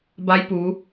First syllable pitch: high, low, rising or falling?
rising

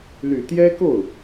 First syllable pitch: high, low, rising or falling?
low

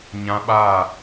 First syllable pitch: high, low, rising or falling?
high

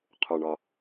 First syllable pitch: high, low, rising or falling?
low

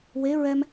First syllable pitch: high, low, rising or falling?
rising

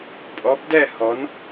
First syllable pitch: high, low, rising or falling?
rising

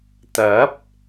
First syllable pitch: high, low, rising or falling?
rising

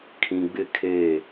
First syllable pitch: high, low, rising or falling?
low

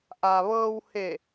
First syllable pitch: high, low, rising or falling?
low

